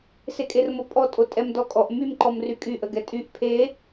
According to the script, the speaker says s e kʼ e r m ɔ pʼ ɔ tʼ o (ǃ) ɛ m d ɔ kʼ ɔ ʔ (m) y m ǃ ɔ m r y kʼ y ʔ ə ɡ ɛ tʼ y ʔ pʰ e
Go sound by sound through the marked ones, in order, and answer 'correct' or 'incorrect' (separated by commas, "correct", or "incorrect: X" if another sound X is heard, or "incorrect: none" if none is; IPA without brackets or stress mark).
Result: incorrect: tʼ, correct